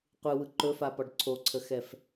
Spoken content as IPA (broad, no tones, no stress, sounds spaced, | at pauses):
qʷ ɯ w ɯ ǃ ɵ f a p ɒ ɖ ǀʰ o ǀʰ ə x ɛ f